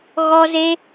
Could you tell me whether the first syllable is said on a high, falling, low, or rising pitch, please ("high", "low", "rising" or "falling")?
high